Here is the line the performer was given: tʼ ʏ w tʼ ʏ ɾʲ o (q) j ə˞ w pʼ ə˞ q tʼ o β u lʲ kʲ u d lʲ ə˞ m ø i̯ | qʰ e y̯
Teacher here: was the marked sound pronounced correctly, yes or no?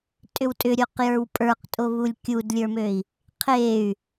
yes